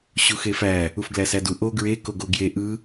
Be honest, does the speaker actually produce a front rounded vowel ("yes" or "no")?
no